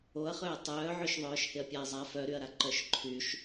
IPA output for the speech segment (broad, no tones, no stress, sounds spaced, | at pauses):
o ɐ̯ χ ø ɐ̯ tˤ œː ʕ ø ʃ ðˤ œː ʃ h ɪ ɐ̯ pʲ a ɐ̯ zˤ a f œ ɾ y ɐ̯ ɾ a ǃ œ ʃ ǃʰ y ʃ